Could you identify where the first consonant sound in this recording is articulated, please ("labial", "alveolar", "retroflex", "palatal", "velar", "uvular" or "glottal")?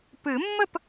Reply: labial